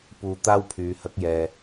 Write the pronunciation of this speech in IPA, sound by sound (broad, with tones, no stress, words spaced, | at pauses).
puː˧t̪aː˥wpʰyː˨˧ hɐ˨˥k̚ jɛː˨